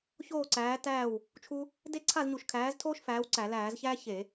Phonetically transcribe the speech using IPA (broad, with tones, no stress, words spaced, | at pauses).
çoː˥˨ǀæː˨˥tæː˥˨w | t͡ʃʰu˥ | de˥˨ǀʰa˥˨zɲu˧˩˧ʃ kʰæː˨˥ztʰoː˥ʃ fæː˨˥wǀæ˧˩˧læː˧˩˧zçæː˥ çe˧˩˧